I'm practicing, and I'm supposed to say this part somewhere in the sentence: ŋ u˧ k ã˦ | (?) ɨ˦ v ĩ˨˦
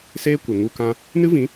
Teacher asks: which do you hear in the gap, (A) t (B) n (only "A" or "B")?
B